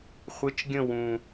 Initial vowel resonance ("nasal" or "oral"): oral